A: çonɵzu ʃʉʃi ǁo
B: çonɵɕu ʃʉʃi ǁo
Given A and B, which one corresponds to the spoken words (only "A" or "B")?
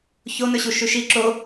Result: B